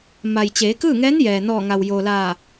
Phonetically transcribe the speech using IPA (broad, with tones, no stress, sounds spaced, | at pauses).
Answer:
m a˩ j t͡ɕ eː˩˧ k ɯː˥˨ ŋ ɛː˧˥ n j ɛː˩ n ɔː˧˩ ŋ a˩ w j oː˩ l aː˧˩